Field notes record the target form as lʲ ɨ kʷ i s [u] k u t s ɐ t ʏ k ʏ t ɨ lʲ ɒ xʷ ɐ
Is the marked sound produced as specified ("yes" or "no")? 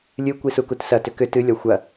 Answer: yes